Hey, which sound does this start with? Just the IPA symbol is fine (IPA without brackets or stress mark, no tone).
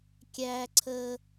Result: kʲ